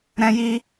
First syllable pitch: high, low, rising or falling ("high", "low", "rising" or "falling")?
high